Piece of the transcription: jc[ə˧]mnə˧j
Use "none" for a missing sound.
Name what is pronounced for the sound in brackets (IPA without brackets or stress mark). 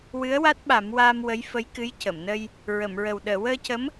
ə˨˩˨